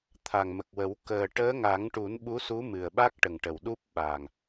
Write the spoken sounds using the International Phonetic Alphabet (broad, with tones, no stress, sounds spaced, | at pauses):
t̪ʰ a˨˩ ŋ m ə˨˩ k̚ w ə˨˩˦ w k əː˨˩ ʈ əː˧˥ ŋ a˨˩˦ ŋ ʈ u˨˩˦ n ɓ u˧˥ s u˧˥ m ɨ˨˩ ə̯ ɓ a˦˥ k̚ ʈ ə˨˩ ŋ ʈ ə˨˩ w ɗ u˦˥ p̚ ɓ a˨˩ ŋ